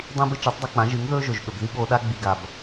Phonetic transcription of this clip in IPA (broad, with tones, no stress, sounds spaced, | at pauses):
dˤ ĩ˦ b ɨ˦ t͡ʃ ɨ˨˦ tˤ dˤ u˧ k͡p ã˨˦ ʒ ɨ˨˦ ŋ ð ɵː˦ ʒ ɵ˨ ʒ ɠ ɵ˨ b ð i˦ ɠ o˧ ɗ a˦ ɡ͡b i˧ ɡ a˨ b